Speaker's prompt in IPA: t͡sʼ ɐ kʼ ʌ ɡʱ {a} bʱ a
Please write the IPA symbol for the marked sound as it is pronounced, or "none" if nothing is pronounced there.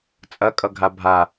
a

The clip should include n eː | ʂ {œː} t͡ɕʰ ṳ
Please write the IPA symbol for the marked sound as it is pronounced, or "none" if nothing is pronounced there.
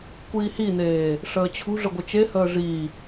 əː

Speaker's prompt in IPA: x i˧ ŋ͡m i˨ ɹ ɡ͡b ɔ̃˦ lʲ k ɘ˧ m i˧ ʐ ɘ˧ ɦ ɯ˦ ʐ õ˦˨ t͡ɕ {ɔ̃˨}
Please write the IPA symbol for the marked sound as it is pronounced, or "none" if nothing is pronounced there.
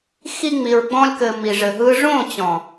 ɔ̃˨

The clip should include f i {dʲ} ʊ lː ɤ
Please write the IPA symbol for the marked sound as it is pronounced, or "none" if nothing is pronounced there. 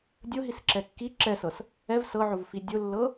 dʲ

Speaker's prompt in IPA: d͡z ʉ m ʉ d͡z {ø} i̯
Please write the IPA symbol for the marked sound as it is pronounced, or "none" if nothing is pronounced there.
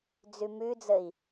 ə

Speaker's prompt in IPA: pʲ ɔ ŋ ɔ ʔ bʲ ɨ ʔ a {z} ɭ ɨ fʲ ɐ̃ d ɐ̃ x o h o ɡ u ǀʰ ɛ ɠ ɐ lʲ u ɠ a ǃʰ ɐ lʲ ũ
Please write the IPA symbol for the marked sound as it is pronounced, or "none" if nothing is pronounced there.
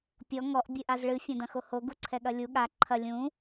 z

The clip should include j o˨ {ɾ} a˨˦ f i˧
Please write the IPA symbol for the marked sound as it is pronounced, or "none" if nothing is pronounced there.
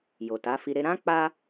t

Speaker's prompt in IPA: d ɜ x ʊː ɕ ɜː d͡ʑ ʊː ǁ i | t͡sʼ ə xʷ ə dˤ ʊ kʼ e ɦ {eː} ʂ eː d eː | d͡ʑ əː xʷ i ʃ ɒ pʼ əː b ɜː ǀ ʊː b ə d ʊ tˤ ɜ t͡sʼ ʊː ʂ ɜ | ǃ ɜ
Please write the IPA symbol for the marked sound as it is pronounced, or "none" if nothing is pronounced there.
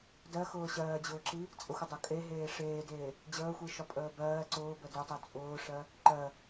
eː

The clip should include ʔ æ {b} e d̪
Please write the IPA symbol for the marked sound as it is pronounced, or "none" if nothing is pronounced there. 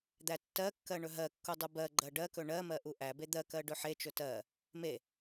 b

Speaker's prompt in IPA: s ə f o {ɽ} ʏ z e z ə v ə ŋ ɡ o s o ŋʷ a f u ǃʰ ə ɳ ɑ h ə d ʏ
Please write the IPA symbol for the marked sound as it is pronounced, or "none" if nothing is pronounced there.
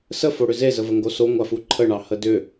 ɽ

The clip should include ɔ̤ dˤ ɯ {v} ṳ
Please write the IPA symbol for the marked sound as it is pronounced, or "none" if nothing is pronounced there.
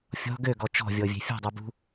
b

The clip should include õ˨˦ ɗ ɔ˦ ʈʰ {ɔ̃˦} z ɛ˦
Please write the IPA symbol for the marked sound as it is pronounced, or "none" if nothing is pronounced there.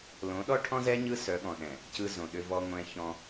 ɔ̃˦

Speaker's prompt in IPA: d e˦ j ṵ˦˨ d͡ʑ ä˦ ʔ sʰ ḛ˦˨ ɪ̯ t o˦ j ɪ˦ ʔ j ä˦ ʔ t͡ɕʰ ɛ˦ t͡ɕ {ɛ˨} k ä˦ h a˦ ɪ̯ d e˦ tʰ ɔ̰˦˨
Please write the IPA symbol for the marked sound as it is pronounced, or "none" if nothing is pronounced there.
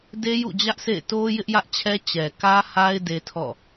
ɛ˨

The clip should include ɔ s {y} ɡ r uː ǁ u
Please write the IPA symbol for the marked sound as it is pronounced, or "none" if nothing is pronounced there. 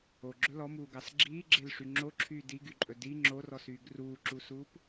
yː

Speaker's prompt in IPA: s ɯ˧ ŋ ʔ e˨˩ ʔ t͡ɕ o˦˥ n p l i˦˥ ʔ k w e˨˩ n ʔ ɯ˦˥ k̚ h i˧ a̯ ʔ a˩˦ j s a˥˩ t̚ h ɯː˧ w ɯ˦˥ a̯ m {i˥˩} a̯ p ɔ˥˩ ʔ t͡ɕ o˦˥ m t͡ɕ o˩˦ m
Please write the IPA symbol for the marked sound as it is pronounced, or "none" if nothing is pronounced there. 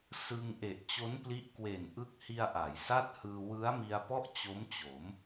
i˧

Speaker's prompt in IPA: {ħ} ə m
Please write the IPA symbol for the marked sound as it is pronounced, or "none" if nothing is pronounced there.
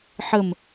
ħ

